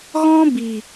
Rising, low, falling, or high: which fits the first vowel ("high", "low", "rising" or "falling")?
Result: high